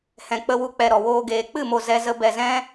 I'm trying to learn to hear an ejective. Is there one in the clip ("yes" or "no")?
no